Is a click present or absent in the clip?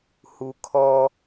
absent